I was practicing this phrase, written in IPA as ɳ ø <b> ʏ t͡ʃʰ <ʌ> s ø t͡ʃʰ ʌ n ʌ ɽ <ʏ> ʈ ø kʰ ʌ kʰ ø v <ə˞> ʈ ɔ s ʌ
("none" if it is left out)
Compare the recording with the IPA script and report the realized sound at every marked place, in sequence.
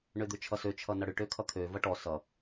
d̪, ʌ, ʏ, ʌ

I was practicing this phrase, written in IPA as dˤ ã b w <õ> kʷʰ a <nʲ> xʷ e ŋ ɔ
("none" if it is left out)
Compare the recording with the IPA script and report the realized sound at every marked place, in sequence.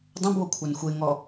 o, n

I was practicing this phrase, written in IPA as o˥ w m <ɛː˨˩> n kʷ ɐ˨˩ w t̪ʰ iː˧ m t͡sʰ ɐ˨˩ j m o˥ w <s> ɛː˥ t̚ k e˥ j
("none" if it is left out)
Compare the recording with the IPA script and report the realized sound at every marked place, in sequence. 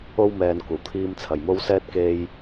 ɛː˨, s

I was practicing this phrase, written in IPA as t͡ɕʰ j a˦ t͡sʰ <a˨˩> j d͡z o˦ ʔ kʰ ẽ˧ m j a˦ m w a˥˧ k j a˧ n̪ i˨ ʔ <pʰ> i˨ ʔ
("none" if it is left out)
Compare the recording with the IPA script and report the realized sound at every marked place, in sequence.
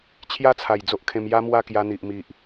a˨˩, m

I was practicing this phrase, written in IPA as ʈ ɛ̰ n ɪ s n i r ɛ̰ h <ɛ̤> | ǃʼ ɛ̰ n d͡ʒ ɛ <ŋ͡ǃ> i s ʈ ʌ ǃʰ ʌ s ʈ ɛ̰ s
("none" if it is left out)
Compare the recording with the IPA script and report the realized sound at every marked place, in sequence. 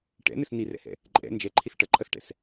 ɛ̰, ǃʰ

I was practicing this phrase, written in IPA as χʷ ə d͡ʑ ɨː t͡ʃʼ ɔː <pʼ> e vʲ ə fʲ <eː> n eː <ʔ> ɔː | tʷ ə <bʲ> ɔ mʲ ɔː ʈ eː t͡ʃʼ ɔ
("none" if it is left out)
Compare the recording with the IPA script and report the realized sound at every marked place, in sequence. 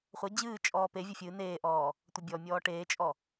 p, ɨː, ʔ, bʲ

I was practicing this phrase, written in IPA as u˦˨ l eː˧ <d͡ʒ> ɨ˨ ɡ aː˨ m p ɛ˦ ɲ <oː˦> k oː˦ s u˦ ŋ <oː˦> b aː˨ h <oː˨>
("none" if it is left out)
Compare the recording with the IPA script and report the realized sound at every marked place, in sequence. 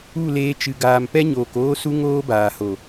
t͡ʃ, oː˨, oː˦, o˨

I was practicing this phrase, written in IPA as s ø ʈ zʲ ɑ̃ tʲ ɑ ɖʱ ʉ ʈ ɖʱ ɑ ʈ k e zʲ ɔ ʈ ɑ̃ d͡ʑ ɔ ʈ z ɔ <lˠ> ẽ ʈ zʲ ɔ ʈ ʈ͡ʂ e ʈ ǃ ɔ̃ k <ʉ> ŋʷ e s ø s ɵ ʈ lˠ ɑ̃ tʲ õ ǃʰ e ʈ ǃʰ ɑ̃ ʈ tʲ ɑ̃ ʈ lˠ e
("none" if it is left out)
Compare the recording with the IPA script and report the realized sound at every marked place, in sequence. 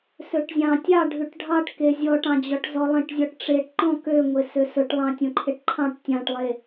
lˠ, ø

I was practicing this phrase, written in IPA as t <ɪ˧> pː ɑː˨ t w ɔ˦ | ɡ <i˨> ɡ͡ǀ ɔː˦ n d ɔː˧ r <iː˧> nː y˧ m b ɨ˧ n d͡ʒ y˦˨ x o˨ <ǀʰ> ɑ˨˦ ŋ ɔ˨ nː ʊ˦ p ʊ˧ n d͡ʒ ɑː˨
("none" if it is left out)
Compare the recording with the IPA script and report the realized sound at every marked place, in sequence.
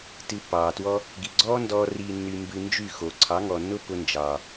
ɨ˧, i˨, iː˧, ǀʰ

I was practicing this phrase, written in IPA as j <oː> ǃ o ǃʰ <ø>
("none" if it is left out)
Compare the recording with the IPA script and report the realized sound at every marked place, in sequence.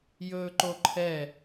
ɵː, ɛ

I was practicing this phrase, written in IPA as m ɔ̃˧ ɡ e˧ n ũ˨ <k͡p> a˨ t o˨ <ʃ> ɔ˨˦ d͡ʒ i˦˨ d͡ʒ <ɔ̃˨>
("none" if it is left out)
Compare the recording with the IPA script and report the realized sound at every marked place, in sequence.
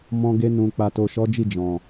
k͡p, ʃ, ɔ̃˨

